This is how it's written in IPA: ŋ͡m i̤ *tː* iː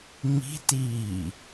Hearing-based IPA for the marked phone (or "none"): t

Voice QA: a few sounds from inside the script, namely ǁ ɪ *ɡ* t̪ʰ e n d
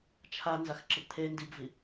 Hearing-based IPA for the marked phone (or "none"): ɡ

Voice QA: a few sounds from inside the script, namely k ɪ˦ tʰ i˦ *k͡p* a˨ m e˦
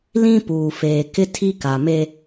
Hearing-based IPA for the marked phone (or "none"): k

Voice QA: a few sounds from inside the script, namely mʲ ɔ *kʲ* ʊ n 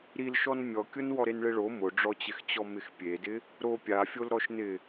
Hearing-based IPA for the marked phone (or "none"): kʲ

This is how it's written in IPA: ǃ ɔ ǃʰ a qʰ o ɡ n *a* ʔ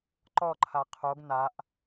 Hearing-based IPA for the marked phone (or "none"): a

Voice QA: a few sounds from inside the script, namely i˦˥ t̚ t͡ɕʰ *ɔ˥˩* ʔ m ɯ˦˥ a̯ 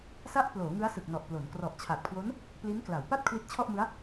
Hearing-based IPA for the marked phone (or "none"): ɔ˥˩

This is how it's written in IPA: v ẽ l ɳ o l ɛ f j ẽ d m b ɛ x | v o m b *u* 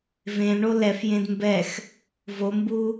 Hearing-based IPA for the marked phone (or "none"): u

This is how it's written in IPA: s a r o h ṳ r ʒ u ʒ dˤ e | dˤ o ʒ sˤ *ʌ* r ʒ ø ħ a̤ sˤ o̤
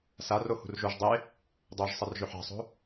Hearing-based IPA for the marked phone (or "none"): ʌ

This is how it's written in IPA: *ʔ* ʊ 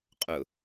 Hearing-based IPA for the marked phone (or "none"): qʼ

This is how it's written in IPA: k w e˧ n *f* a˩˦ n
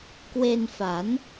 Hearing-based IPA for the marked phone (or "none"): f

